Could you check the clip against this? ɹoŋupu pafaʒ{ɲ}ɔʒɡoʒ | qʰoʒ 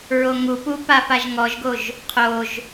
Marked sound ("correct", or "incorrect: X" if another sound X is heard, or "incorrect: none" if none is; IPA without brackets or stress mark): incorrect: ŋ